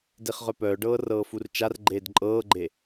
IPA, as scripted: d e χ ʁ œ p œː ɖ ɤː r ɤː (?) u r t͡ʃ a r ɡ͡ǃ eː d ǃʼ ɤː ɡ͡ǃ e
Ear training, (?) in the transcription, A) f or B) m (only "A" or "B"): A